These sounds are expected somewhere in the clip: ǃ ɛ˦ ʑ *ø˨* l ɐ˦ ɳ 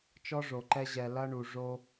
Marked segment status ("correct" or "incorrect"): incorrect